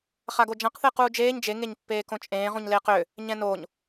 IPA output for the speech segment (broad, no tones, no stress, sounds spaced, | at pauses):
χ a ɡ o d͡ʒ ã q θ eː q uː d͡ʒ eː ɲ d͡ʒ e ŋ e ɲ pː eː k õ t͡ʃʼ ẽː ʁ ũ ɲ l eː q ʏ | ɲ ɛ̃ n o ɲ